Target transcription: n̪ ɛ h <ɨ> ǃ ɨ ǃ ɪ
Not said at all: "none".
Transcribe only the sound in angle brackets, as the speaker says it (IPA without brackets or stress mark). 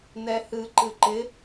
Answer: ɨ